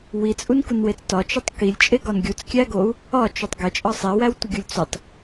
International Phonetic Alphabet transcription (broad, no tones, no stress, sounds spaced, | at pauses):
w i t͡sʼ u n k u n w e t͡s t ɒ t͡ʃ i tˤ k i lʲ t͡ʃʼ e ɡ ɒ n ɡʲ u t͡s kʲ æ ɡ o u̯ | ɒ t͡ʃ o tˤ ɡ e t͡ʃʼ ɒ sˤ e w æ w tʷ i ɡʲ u lʲ t͡s u tˤ